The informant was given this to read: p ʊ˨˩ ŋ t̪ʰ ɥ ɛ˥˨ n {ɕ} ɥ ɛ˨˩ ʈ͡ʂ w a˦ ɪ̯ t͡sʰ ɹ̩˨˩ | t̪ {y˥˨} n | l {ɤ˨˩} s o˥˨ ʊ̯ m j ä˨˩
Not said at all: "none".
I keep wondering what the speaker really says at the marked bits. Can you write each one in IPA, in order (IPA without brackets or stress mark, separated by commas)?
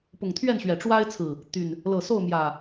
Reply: ɕ, y˨˩, ɤ˨˩